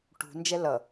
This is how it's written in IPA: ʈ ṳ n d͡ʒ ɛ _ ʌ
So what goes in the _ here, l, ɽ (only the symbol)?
l